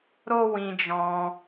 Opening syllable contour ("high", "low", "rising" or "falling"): high